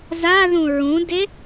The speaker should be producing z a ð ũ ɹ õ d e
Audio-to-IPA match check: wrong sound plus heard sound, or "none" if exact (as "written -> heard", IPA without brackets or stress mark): õ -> ũ